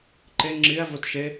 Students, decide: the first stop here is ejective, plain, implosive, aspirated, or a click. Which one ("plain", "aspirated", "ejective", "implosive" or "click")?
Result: click